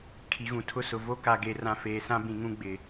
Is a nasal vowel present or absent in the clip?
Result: present